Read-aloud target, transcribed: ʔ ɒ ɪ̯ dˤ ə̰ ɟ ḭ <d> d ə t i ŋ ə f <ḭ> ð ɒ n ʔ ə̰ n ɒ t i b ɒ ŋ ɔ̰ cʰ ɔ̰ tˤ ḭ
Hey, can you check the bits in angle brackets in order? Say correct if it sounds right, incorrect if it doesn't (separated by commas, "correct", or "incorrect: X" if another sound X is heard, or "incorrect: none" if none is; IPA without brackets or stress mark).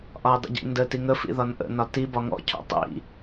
incorrect: n, correct